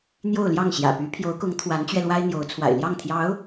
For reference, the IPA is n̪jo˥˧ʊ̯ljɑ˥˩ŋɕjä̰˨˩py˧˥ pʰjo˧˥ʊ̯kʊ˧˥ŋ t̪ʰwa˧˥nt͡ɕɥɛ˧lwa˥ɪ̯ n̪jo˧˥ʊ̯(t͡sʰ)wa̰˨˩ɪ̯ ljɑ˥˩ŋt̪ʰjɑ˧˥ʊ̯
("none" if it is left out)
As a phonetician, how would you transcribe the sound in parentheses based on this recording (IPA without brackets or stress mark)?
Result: t͡sʰ